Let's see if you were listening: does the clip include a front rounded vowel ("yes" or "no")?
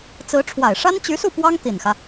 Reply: yes